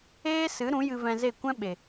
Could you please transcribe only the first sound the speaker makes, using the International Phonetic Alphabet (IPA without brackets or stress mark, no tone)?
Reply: eː